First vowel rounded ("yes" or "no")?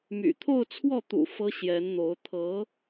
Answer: yes